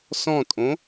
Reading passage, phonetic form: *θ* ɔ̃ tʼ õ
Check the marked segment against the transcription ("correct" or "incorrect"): incorrect